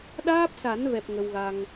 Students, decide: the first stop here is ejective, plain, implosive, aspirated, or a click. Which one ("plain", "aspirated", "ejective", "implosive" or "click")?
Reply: implosive